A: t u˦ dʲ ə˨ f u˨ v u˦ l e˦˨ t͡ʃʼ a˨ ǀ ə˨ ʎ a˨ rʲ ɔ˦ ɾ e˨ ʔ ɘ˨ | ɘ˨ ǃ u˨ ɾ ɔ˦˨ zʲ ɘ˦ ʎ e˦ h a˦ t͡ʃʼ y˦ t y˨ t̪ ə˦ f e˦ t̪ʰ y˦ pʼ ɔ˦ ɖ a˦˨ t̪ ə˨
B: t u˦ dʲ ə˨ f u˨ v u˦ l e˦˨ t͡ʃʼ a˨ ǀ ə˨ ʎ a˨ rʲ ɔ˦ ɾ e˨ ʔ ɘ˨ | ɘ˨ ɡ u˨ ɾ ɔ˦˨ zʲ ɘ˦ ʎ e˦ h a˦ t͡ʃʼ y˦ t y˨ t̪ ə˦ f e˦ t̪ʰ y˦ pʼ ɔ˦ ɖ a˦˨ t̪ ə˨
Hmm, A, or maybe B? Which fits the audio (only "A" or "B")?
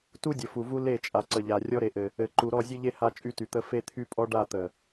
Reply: A